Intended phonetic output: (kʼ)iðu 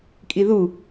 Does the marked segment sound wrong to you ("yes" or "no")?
no